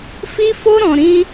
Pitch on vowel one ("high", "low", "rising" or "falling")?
high